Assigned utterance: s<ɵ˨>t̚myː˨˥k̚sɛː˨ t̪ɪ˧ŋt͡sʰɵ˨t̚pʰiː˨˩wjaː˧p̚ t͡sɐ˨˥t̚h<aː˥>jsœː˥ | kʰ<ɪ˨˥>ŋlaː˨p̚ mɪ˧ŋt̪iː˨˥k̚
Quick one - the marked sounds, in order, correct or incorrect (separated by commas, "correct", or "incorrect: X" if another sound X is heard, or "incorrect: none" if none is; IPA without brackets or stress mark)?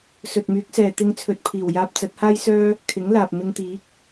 correct, correct, correct